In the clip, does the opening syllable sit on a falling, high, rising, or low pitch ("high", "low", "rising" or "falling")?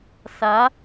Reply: rising